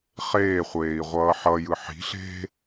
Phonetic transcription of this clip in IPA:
χ eː χʷ eː i̯ ʁʷ ʌː ħ ʌ j ɯ ħ i̤ ɬ e̤

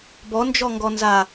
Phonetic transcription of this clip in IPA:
b ɔ n d͡ʒ ɔ ŋ ɡ ɔ n z a

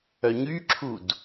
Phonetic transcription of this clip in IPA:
œ ɲ y ǁʰ u d

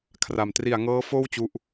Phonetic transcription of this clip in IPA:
kʰ r a˨˩ m t r i˨˩ a̯ ŋ ɤː˦˥ f oː˥˩ w t͡ɕ u˦˥ ʔ

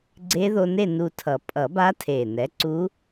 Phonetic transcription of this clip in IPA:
ɡ͡ǀ e˧˥ ð o˧ n e˥˨ n u˧ tʰ ʌ˨˩˦ pʼ ʌ˨˩˦ b a˧˥ tʰ e˨˩ n ɛ˩˥ ǀ u˧˥

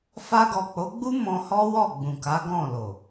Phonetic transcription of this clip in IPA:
f a˧ ɡ ɔ˨ k͡p o˨˦ ɡ͡b u˦ m ɔ̃˧ h ɔ˦ w ɔ˦˨ ɡ͡b ũ˨ k a˨˦ ɡ ɔ̃˦˨ l o˨

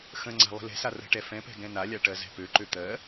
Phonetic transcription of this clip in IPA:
x ə̃ ŋ͡ǀ a̤ lˠ ə̤ l ɛ̤ s a r ə̤ ʈ ɛ f ɛ̃ p ɛ̤ ɡ ɛ̃ n a lʲ a ʈ ɜ z ɛ̤ p ø ǃ ø t̪ ɜ

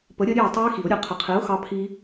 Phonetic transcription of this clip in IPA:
p ə˨˥ ɾʲ ə˦˥ ɾʲ e˥˨ ə̯ tˤ u˦˥ ɪ̯ x i˨˩˦ ʊ̯ ɾʲ ɘ˨˥ qʰ ə˨˩˦ qʰ i˨˥ ʊ̯ x ɑ˦˥ pʰ i˦˥

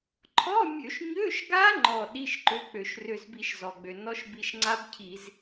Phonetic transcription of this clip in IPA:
ǃʰ ɔ˧˥˧ mʲ ø˧˩˧ ʃ ɲ ø˧˥˧ ʃ ɡ a˦˥ ŋ͡ǃ ɔ˧˩ ɗ i˧˥˧ ʃ ǃ ø˧˥˧ k͡p ø˧˩˧ ʃ r ø˧˩ z b i˧˩˧ ʃ z ɔ˩ ɡ͡b ø˩ n ɔ˦˥ ʃ b i˧˩ ʃ ŋ͡ǀ a˦˥ b cʰ i˧˩˧ z

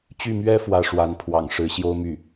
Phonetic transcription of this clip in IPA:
t͡ɕ y˥˩ m ɥ ɛ˥ f w ä˥˩ ʂ w a˧˥ n pʰ w ɑ̰˨˩ ŋ ʂ ɻ̩˧˥ ɕ j o˥ ʊ̯ m y˥˩

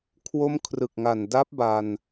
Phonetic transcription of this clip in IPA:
kʰ w o˧ m kʰ r ɯ˨˩ k̚ ŋ a˨˩ n d a˦˥ p̚ b a˧ n

